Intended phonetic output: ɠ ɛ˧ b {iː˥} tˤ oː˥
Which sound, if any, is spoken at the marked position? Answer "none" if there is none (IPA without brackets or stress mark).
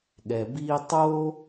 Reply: iː˥